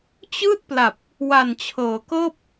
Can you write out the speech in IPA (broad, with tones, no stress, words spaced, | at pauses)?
t͡ɕɯː˥˩t̚pla˨˩p̚ | wa˨˩nt͡ɕʰɤː˩˦kɤː˥˩p̚